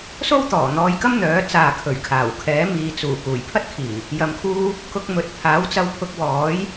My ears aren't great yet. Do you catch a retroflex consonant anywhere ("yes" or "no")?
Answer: no